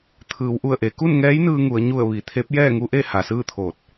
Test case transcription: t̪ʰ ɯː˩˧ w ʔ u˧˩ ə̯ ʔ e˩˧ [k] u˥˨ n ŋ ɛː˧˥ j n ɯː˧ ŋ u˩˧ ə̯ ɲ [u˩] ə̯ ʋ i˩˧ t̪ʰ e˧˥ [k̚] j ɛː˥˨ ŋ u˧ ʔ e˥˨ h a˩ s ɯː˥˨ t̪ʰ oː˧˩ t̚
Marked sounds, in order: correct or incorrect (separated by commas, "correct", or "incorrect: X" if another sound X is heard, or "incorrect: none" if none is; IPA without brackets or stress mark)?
correct, incorrect: u˧˩, incorrect: p̚